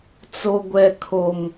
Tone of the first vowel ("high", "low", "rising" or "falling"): high